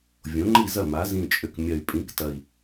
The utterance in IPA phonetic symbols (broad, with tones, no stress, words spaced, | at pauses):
vʲõ˩˥ŋ͡ǃi˥˩zɐ˥˩ ma˩˧zĩ˨˩t͡ʃʼʏ˨˩k mʲɐ˨˩y̯pʼĩ˩˥ktɐ˨˩i̯